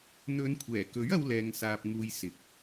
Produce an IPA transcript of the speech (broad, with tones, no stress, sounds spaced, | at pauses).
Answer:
n̪ ɵ˨˧ n kʷʰ ɛː˨˩ k ɵ˨˥ ɥ ɐ˥ w l ɛː˧ ŋ s aː˧ p̚ ŋ uː˧ j s ɪ˨ k̚